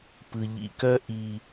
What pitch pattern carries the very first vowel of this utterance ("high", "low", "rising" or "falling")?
low